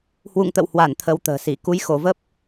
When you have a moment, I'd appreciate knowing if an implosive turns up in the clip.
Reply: no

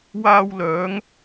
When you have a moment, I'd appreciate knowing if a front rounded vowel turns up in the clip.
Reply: yes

